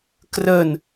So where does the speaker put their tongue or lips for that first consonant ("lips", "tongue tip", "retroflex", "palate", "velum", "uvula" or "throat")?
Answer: velum